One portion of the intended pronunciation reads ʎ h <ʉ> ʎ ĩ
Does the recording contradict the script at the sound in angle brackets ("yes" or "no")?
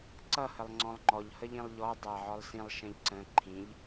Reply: yes